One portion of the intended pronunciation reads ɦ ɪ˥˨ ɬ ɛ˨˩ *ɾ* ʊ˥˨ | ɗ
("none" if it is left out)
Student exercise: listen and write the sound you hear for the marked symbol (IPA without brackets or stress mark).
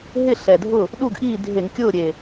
dʱ